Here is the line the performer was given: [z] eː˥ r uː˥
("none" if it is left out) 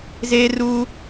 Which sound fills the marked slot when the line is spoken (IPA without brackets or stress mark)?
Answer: z